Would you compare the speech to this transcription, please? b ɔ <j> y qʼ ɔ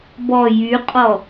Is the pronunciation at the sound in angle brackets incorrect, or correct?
correct